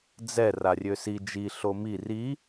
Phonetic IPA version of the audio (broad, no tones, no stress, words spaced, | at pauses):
d͡zɛ rarʲøsi d͡ʒi ɬomi ri